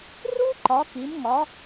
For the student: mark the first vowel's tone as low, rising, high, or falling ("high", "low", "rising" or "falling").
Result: high